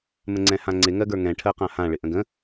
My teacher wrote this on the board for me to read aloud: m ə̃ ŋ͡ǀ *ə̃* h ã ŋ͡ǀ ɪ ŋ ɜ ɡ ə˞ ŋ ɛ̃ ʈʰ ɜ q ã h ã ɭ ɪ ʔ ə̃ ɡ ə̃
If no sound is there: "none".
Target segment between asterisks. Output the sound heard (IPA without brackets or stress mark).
ɛ̃